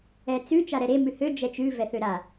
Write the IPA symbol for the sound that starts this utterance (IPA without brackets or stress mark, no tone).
ɛ